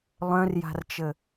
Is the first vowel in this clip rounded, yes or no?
yes